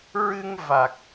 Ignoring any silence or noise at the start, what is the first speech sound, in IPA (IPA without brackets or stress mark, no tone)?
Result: ɹ